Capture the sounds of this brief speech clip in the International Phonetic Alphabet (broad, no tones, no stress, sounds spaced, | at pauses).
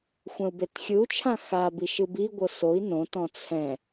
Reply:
xʷ ɛ̃ u̯ b e t xʲ ɯ u̯ t͡ʃʰ ã x a b i ʃ ɯ b i ɡʷ ɤ s o i̯ n õ t ɔ̃ t͡sʰ ɛ̃